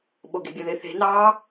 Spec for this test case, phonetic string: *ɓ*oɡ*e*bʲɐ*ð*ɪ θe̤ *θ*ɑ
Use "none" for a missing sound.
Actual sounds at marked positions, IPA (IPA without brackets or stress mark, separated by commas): ɓ, e̤, ð, n